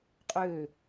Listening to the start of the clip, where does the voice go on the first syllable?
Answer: falling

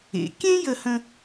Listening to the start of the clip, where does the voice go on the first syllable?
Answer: low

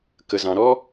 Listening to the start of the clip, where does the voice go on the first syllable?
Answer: low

